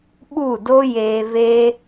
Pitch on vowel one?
falling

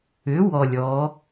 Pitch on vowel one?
rising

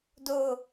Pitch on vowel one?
falling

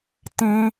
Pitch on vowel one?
high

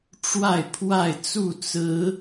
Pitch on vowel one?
falling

